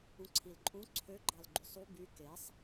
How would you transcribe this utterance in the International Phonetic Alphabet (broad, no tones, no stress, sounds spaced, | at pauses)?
ũ ǀʰ i l ǃʼ ũ ǀʰ ø ɡ͡ǃ ɑ l ɡ͡ǃ y sˤ u b y k e sˤ